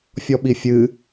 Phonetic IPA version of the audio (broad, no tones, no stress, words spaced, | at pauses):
fʲɔɓifʲɨ